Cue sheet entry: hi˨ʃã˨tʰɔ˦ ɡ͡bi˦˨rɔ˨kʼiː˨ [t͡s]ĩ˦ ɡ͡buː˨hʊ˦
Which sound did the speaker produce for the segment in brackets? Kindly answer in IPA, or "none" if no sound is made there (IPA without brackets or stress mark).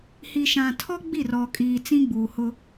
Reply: t͡s